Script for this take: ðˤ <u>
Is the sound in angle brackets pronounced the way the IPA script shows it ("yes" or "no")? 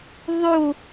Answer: yes